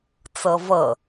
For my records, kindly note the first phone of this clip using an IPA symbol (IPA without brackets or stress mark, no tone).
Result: t͡s